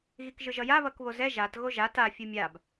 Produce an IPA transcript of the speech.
ɣ i k ʒ ɯ ʒ ʌ j a β ʌ k β o z ɛ ʒ a t ɣ o ʒ a t a fʲ u mʲ a b

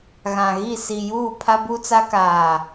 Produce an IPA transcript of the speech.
ɣ ã˨ ɣ i˦˨ s i˨ j uː˦˨ pʰ a˦ b u˦ t͡s a˦ k aː˨

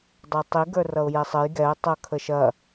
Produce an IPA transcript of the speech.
dˤ ə˞ tˤ i ɡ ə˞ r ʌ ʊ̯ j ɛ sˤ ə j ɡ ɛ ə̯ tˤ ʌ kʰ ə ʃ ɐ

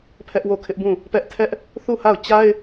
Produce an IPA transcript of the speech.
pʰ ɛ˦ ʔ w o˦˨ kʰ ɪ˦ ʔ b ũ˦˨ | p ɛ˦ ʔ tʰ ɛ˦ ʔ | θ u˦˨ h a˦˨ ʊ̯ t͡ɕ a˦ ɪ̯

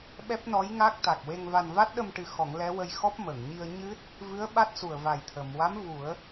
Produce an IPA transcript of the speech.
ɓ ɛ˦˥ p̚ n ɔ˧˥ j ŋ a˦˥ k̚ t̪ a˨˩ k̚ w e˧ ŋ v a˧ n v a˦˥ t̚ ɗ ə˧ m ʈ ɨ˨˩˦ x ɔ˨˩˦ ŋ l ɛ˧˥ w ə˧ j x ɔ˦˥ p̚ m ə˨˩˨ ŋ ɲ i˧ ə̯ ɲ ɨ˦˥ t̚ | v ɨ˧˥ ə̯ ɓ a˦˥ t̚ s u˨˩ ə̯ v a˨˩ j t̪ʰ ə˨˩˨ m w a˧˥ m v u˨˩˦ ə̯

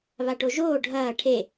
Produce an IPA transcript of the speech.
β a ʈ o ʒ oː ɖʱ ɐː ʈʰ e

